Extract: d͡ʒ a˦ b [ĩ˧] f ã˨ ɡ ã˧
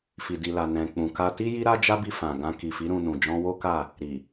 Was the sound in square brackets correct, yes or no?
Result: no